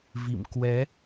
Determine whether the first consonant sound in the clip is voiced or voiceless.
voiced